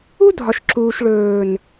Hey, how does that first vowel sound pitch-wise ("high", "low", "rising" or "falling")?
high